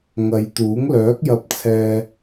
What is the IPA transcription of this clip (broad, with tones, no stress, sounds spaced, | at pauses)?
ŋ ɐ˨˧ j t̪ uː˨˥ ŋ l œː˨˥ k̚ j ɐ˧ p̚ t͡sʰ ɛː˧